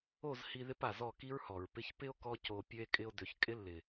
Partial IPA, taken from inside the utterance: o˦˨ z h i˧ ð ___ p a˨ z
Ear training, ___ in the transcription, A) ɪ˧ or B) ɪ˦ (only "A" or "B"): B